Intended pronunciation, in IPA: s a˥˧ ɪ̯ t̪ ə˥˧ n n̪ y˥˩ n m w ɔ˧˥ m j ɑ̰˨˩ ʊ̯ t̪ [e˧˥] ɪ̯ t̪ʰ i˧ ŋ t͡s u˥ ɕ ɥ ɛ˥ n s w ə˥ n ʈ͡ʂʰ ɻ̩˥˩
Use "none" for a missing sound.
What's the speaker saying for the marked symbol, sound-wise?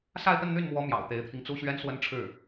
e˧˥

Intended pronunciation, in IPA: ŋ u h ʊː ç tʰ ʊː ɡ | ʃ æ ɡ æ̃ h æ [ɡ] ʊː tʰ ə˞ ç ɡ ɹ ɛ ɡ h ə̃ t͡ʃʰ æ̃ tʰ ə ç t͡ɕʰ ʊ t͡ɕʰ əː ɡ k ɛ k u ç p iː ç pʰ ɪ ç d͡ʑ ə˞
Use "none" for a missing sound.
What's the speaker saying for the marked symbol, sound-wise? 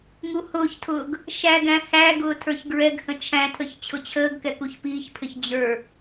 ɡ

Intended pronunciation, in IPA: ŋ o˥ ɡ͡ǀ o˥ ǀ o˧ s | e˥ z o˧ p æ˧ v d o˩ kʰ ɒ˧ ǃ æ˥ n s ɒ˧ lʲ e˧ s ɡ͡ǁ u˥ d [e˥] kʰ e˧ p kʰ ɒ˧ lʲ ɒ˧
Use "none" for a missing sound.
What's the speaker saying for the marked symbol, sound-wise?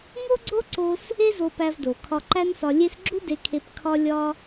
e˧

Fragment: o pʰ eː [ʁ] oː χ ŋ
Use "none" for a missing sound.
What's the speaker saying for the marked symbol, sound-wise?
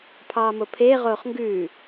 ʁ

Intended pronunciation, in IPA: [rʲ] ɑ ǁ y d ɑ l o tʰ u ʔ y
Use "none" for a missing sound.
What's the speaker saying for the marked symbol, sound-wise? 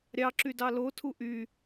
ɾʲ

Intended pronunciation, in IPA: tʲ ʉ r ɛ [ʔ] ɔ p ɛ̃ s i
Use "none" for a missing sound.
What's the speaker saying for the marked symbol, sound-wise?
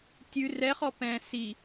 χ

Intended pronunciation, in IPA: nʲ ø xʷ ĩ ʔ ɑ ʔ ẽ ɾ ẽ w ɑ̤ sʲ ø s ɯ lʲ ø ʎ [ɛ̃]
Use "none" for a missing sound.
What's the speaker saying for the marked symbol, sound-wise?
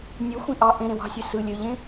ẽ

